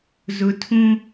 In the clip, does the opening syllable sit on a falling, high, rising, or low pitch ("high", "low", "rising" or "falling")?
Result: high